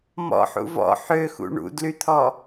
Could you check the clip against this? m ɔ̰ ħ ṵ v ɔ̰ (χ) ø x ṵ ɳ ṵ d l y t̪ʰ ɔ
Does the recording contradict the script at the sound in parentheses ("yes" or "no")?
yes